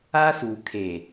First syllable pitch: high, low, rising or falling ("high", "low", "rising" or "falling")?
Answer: high